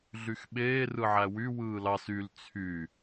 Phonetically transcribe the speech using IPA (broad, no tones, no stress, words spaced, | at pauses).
ɮyxɓeː rɯʕæwy wɯːlɑs yl t͡sʰy